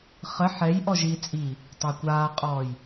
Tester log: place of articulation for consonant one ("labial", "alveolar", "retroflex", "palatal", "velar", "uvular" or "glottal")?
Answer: uvular